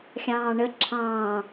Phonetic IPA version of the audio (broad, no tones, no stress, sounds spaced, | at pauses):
xʲ ɑ̃ː ɳ ə ǁʰ ɑ̃ː